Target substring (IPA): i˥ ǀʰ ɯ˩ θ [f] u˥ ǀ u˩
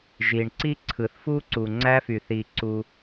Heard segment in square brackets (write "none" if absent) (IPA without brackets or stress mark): f